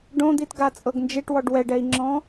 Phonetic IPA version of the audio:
ɖ õ d̪ i t ɡ a t͡sʼ ɤ ɡ n d͡ʒ e ʈ w ɔ ɖ w ɛ ɖ ɛ i̯ ŋ͡ǁ ɔ̃

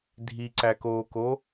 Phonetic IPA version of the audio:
dʱ i ǀ æ k oː k o

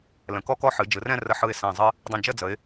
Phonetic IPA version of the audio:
l ə̃˩˧ k ɔ˥ k ɔ˥ ħ ɨ˩˧ d͡ʒ ɯ˩˧ r ɛ̃˥˧ r ə˧ ħ ɯ˧˩ ɪ̯ s ɛ̃˧˩ zˤ ɨ˥ | dˤ ə̃˧˩ d͡ʒ ə˥˧ d͡z ə˩˧ ɪ̯

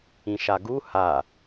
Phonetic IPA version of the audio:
ĩ ʃ a ɡ u h a

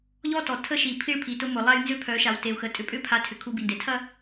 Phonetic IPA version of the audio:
ʎ ɔ˦ t ɔ˨ tʰ ə˦ ʃ i˨ pʰ i˦ ɭ pʰ i˨ t ʊ˦ m ʊ˨ lˠ a˦ j n z ʏ˦ pʰ œ˨˦ ʃ a˨ w t e˨ u̯ x ə˨ tʼ ʏ˨ pʼ ʏ˦ pʰ a˨˦ tʰ ʏ˨ kʰ u˦ b i˨ n d e˨ tʰ ɐ˦

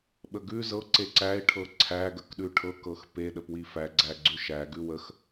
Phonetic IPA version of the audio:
ɓ ə ɡ ʉ z ɤ ǀ e ǀ æ ɪ̯ ʈʰ ɤ ǀʰ æ ɡ ə k ɗ ʉ ʈʰ ɤ k ɤ x p e ɗ ə p w i f æ ɡ͡ǀ æ ɡ͡ǀ ʉ ʃ æ ɡ ʉ w ə x

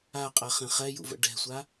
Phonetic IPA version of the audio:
a qʼ a χ ẽ χ ɛ j ṵ v ə̰ ɖ ɛ̤ sʷ a

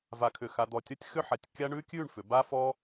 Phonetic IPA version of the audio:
v a˧ kʰ ʏ˧˩ x a˧ d̪ ɔ˧˩ tʲ ɔ˥ tʲ x ʏ˥˧ ħ a˧˩ tʲ kʲ a˥ ɳ ʉ˥ kʲ ʉ˥˧ ɳ f ʏ˩˧ b a˥ f ɔ˥

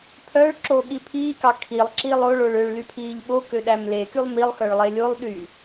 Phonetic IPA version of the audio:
pʰ œ ɭ ǁ o ɠ i pʰ iː k ɑ kʰ i lˠ ǁ i lˠ o ɭ o ɭ ø ɭ l y pʰ iː ʎ ɓ o k ø ɗ æ m l e k y lˠ m i lˠ x œ ɭ lˠ e lʲ o lˠ ɗ y

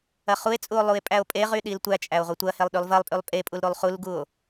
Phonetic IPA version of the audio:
ɐ χ u e̯ t͡sʼ u o̯ lˠ u e̯ pʼ æ o̯ pʼ e ʁ y ɗ i l tʷ æ t͡ʃʼ æ o̯ ʁʷ i tʷ ɐ h e lˠ ɗ y lˠ v ɐ lˠ pʼ y lˠ pʼ e pʼ u l ɾ u lˠ χ u l ɡ u o̯

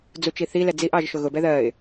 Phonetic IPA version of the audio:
d͡z u t͡ʃ i θ i l ɛ d͡z i ʔ ɑ ʒ ʃ ʊ ɣ ʊ b ɛ ð ɜ ɪ̯

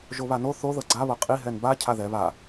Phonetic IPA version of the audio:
ʒ o β a n o θ o ð ɤ ɡ͡ǀ a β ɤ qʼ i ɦ ɛ n b a cʰ a ð ɛ β a

